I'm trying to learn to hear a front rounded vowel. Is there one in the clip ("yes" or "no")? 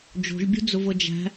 no